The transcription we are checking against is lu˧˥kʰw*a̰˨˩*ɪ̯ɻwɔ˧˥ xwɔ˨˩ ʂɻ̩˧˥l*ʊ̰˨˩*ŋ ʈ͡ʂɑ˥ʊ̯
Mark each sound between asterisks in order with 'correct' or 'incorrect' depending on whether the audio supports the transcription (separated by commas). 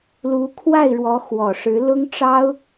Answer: incorrect, incorrect